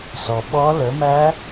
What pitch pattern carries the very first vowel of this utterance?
low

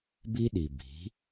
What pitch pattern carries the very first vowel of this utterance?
high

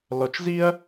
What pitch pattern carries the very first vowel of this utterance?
low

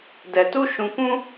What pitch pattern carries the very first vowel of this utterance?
low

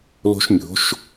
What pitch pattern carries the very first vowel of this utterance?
high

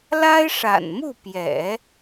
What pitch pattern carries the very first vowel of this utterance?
high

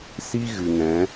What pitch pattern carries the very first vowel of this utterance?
high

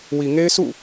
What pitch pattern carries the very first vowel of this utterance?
low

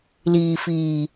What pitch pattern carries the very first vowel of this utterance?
low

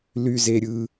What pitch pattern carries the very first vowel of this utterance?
high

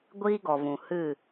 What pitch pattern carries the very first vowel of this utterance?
high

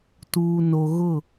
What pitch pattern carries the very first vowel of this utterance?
low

